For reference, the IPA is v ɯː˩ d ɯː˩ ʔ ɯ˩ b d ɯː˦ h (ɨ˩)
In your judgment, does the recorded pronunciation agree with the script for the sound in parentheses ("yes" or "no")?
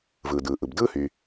no